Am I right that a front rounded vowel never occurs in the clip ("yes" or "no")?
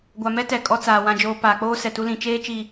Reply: yes